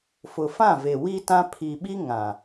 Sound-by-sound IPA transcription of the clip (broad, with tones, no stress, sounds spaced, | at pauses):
f ʊ˨ f ã˦˨ v e˨ w i˦ t ã˦ pʰ i˨ ɓ i˦ ŋ ã˨